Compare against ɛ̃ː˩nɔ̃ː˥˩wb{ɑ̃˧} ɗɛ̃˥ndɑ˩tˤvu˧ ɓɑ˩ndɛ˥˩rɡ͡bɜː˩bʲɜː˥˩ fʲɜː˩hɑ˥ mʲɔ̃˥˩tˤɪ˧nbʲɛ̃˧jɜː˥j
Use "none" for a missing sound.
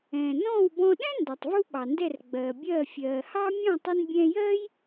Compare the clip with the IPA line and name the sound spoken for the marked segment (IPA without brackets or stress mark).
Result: ɔ̃˧